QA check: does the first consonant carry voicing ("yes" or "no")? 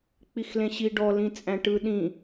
no